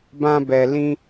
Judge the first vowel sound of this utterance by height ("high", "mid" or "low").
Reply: low